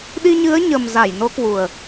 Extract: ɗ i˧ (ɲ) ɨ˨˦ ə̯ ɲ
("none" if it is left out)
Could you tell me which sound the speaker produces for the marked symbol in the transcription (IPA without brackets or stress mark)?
ɲ